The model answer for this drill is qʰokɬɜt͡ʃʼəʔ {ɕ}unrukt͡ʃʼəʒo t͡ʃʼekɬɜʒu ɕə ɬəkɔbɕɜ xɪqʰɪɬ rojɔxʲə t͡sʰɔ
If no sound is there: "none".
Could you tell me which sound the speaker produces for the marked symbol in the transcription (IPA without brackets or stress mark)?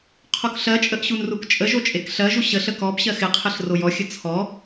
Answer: ɕ